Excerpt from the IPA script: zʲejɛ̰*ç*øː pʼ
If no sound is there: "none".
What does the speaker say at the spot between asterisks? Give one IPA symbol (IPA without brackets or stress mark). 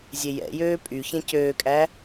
j